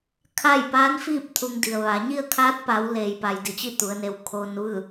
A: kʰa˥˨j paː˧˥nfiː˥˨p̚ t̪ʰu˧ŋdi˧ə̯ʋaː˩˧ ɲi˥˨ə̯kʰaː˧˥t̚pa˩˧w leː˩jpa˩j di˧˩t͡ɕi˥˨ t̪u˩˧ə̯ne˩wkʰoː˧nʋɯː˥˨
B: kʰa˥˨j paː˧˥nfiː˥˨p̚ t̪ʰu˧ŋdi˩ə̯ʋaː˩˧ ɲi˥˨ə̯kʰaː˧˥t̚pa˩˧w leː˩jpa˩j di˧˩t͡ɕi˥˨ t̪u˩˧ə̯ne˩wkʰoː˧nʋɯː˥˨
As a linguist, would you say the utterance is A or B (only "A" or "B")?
B